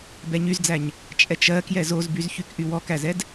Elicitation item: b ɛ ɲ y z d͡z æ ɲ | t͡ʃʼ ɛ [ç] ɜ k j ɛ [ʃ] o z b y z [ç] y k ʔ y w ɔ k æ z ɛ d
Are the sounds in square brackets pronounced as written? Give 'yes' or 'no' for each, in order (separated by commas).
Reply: no, no, yes